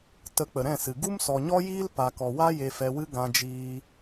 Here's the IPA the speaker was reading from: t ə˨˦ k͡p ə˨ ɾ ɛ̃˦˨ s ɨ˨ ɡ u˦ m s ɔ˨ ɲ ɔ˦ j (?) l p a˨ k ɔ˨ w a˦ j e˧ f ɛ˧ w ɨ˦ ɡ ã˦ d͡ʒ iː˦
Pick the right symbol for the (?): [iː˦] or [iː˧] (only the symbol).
iː˦